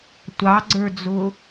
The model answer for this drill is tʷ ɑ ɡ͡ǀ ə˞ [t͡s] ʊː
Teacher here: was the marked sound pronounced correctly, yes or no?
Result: no